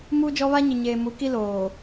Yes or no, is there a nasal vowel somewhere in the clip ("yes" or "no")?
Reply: no